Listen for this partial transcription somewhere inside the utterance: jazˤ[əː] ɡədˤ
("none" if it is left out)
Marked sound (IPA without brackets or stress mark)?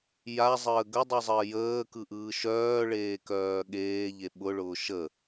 əː